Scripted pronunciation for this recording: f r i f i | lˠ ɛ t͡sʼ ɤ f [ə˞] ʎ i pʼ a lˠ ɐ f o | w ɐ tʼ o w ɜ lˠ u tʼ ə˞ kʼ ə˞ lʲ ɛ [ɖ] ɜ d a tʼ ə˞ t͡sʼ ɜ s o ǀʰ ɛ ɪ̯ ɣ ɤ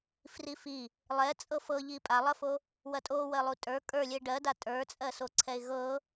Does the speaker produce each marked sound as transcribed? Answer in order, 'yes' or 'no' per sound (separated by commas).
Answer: no, yes